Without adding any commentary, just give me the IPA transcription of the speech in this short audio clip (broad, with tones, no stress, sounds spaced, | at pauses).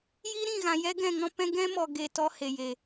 j iː˦ ɾ ĩ˦˨ ɣ ã˨ j ɛ˦ ɡ ɛ̃˦˨ ŋ ɔ̃˦ p ɛ̃˦ ɡ ɛ̃˦ m ɔ˨ ɡ e˨ t ɔ˦ h e˨ j e˨